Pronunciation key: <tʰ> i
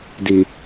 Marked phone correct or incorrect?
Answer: incorrect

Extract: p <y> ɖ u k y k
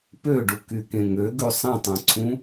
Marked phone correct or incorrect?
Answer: incorrect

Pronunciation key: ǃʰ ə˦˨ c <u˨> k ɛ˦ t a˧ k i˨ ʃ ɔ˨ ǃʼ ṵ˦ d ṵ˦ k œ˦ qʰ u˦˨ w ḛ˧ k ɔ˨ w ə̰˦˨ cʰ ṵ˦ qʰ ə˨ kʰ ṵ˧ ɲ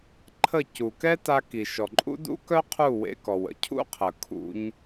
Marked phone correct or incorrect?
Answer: correct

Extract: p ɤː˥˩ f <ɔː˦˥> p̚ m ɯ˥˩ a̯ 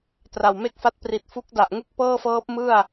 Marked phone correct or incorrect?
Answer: incorrect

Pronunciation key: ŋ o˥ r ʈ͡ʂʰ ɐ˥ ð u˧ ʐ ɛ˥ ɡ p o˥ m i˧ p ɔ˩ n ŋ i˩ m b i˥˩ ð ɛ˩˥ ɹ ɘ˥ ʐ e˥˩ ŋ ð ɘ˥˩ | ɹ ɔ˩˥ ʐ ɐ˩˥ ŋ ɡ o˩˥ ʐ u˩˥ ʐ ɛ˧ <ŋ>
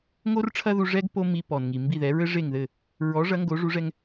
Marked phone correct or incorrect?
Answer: correct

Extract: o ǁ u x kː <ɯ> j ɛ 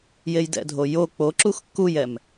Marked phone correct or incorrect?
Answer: incorrect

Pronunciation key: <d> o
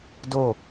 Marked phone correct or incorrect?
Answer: correct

